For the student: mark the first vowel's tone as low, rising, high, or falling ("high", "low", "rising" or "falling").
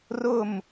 falling